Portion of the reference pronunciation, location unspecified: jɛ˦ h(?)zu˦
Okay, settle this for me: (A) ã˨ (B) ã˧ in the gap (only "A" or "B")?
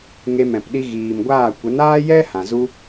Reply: A